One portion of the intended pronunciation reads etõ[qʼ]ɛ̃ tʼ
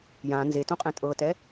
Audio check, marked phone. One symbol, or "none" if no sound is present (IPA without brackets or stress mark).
qʼ